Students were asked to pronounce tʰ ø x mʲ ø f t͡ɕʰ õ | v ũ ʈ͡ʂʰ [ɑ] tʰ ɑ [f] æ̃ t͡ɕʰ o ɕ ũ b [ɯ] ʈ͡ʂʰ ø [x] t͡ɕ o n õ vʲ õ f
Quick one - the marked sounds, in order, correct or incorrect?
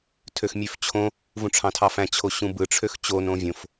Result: incorrect: ɑ̃, correct, correct, correct

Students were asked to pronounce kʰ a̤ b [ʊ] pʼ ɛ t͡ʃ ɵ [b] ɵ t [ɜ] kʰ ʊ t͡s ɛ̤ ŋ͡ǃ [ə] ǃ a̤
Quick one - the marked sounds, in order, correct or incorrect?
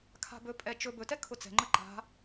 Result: incorrect: ɵ, correct, incorrect: ɛ, correct

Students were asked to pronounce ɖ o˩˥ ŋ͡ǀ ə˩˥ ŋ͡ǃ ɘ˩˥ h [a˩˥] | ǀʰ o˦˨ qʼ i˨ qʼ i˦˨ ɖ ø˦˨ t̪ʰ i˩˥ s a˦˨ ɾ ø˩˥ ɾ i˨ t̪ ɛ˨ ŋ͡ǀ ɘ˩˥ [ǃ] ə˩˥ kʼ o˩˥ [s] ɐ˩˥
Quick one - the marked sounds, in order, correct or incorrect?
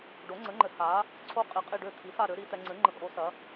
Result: correct, incorrect: ŋ͡ǃ, correct

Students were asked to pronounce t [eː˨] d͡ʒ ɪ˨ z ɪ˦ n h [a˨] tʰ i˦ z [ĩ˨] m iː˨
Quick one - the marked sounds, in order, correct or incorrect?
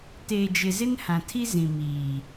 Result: correct, incorrect: ã˨, correct

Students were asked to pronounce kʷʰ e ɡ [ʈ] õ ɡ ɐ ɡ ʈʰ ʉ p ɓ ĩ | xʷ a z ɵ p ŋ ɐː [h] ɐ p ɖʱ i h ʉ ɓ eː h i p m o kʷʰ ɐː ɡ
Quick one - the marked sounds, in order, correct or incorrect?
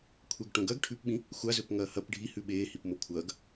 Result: correct, correct

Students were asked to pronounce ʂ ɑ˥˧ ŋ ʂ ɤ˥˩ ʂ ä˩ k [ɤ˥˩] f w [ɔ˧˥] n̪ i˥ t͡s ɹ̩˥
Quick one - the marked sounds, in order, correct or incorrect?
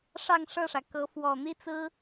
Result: incorrect: ɤ˧˥, incorrect: ɔ˨˩

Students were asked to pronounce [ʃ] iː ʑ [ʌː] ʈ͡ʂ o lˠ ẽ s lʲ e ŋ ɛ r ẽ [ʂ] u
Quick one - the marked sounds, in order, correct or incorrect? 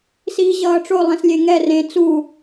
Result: incorrect: s, correct, incorrect: t͡s

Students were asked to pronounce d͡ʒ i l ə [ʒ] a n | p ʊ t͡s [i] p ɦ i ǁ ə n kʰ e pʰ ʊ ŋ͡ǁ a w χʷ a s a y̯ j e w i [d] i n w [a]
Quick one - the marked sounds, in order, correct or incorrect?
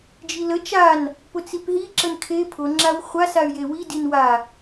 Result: incorrect: t͡ʃ, correct, correct, correct

